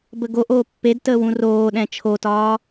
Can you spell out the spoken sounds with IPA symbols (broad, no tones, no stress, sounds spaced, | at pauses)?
b ə ɡ o ʔ oː pː e d t əː w ũ r oː ɗ ɛ̃ t͡ʃʰ o t ɒː